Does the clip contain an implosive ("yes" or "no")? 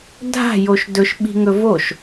yes